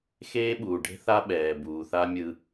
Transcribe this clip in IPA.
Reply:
x eː˦ ɓ uː˨ ɖ e̤˦ θ a˦ ɓ ɛː˨ b uː˨ θ a˦ mʲ ɯ˦

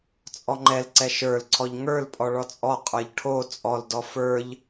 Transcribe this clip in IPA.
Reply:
t͡sʼ ɔ ŋ͡ǃ ɛ l ǀ ɛ ʃ ə˞ l ǀʰ ɔ ʎ ŋ ə˞ l pʼ ɔ ɭ ɔ t͡sʼ ɔ qʼ ə˞ ʎ ʈʰ o t͡sʼ ɔ l d ɔ f ə˞ ʎ

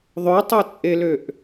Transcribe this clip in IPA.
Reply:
ðˤ ø tˤ œ t͡sʼ e l ø ʔ

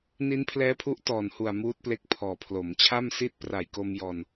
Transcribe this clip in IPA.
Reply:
n i˦˥ n pʰ l ɛː˦˥ pʰ u˦˥ ʔ t ɔː˨˩ n h u˨˩ a̯ m uː˦˥ t̚ p l e˦˥ k̚ pʰ ɔː˨˩ pʰ l o˩˦ m t͡ɕʰ a˥˩ m s i˥˩ t̚ p r a˨˩ j k o˧ m j ɔː˧ n

